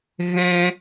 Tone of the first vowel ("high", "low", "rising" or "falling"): high